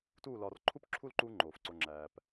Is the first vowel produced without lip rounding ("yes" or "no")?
no